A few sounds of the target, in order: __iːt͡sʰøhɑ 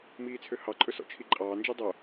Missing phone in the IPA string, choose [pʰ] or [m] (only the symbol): m